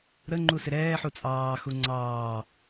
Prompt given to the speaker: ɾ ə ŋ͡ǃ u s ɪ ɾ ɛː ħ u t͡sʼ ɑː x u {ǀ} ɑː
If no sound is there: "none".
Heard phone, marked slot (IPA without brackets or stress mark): ŋ͡ǀ